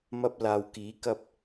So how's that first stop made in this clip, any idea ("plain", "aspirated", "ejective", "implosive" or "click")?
plain